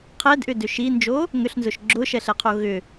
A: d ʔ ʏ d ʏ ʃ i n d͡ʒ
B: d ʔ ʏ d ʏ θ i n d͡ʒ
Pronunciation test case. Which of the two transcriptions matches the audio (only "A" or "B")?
A